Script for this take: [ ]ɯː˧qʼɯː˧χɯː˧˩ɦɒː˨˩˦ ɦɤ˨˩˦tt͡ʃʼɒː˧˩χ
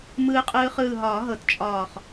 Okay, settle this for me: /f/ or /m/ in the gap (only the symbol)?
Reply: m